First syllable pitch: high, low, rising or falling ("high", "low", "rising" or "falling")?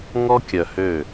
high